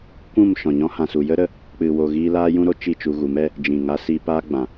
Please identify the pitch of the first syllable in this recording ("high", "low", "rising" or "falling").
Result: falling